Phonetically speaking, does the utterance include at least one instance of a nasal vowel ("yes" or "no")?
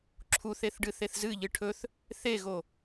no